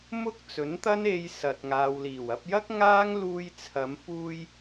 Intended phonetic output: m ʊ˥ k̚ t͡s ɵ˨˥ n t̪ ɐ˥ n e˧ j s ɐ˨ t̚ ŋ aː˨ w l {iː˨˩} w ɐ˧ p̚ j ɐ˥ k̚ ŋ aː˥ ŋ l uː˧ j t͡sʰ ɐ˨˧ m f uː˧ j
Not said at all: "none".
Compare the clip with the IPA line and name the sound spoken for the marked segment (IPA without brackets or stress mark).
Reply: iː˨˩